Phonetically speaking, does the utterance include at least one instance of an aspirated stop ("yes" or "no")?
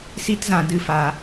no